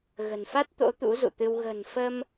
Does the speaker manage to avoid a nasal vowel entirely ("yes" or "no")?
yes